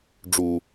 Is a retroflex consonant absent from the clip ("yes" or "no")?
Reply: no